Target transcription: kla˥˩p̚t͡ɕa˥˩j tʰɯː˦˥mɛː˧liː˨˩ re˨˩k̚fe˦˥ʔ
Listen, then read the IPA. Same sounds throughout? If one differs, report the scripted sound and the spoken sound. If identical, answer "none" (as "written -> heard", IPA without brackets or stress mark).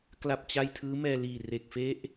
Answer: none